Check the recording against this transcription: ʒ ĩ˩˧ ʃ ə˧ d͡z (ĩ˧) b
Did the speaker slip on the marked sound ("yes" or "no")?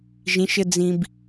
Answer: no